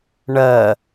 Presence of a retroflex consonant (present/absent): present